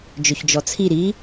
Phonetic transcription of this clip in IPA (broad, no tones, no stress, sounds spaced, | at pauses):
d͡ʒ ɵ ç d͡ʒ ɔ t͡sʰ i ɾ i